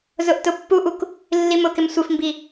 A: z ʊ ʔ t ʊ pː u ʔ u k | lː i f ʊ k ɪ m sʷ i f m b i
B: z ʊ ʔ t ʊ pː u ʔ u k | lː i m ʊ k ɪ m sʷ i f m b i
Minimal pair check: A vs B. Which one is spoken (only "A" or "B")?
B